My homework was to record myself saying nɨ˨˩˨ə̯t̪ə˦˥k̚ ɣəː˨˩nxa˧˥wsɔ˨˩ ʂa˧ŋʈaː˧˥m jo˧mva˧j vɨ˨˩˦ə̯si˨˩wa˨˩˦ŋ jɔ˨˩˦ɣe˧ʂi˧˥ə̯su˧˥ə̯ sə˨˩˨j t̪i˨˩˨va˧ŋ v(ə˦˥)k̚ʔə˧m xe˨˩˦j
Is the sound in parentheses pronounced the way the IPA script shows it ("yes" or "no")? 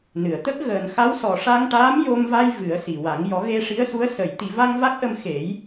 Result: no